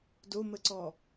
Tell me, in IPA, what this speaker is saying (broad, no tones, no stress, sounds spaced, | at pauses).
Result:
d o m ə ǀ ɔ